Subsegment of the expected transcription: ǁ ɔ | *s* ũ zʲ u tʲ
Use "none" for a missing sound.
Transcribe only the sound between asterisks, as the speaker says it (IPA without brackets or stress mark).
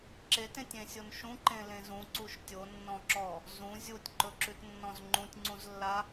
z